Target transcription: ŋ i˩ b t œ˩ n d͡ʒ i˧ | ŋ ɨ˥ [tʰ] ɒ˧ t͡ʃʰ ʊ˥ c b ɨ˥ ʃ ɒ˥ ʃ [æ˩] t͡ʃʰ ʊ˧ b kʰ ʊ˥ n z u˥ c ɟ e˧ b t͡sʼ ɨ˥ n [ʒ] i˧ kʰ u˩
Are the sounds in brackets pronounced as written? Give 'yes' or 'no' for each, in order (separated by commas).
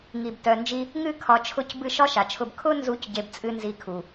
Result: no, no, no